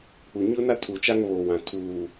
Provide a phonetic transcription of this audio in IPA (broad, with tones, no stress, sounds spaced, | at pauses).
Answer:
k͡p u˨ ɲ ʊ˦ n a˦ tʰ u˨ t͡ʃ a˦ ŋ β oː˨ w ã˨ tʰ uː˨